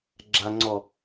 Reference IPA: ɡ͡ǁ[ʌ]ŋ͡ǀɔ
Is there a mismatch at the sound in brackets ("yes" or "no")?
yes